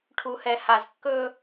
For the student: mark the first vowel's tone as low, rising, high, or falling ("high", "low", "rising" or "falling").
low